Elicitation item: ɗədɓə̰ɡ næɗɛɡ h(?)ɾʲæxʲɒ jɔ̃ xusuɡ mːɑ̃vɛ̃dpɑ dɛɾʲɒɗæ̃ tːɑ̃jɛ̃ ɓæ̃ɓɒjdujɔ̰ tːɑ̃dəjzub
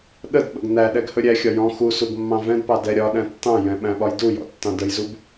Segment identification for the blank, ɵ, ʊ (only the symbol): ɵ